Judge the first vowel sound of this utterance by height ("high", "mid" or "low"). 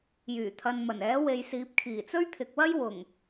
high